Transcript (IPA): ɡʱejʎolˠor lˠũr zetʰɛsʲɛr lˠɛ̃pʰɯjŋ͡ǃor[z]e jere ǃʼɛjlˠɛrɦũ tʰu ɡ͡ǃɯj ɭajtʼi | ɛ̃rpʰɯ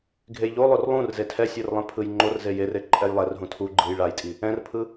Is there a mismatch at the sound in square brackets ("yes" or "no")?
no